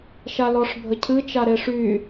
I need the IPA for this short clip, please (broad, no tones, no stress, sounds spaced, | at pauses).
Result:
ʃ a l ɔ ʂ bʱ ə cʰ ɨ t͡ʃ a ɾ e ʂ y